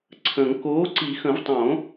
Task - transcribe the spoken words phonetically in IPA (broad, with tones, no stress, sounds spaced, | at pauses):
ǀʰ ə̃˨˩˦ ŋ k oː˨˥ ǀ i˨˩˦ x ə̃˨˩˦ v tˤ õ˨˩˦